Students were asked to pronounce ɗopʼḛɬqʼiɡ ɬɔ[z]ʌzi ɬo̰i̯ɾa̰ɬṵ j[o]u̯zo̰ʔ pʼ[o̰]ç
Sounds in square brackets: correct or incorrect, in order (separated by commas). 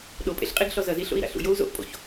correct, correct, correct